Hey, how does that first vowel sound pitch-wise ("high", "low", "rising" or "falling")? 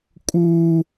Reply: high